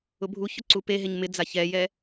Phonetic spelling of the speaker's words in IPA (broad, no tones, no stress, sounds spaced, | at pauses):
ʊ bʱ u ç ʊ ǀ u p e ɦ e ɲ m ɪ d͡z a ç ɛ j ɛ